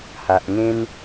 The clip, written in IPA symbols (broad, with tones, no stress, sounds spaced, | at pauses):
h a˨ ʔ ŋ ẽ˦ n